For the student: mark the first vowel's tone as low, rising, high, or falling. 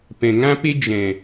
low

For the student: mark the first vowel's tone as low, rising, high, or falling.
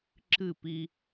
falling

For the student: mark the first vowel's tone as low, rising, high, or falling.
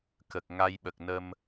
low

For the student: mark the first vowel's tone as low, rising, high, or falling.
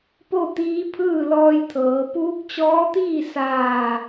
falling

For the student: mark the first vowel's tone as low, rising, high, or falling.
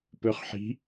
rising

